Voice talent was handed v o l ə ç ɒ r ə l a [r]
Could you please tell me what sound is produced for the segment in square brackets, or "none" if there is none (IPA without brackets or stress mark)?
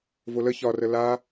none